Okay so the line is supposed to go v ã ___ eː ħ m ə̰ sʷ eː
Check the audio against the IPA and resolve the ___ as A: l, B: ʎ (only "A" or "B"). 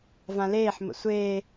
A